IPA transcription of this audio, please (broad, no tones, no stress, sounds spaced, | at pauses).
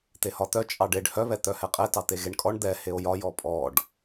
t̪ e h ɒ t̪ œ t͡ʃʼ ɑ ɖ e ɖ h œ β ɛ t̪ œ h ɛ qʼ ɛ t ɑ t̪ e ɣ e ɳ kʼ ɔ ɳ d̪ ɛ h e o̯ j ɒ j ɔ pʼ ɔ ɖ